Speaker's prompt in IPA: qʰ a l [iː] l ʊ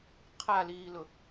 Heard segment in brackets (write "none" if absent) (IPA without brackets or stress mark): iː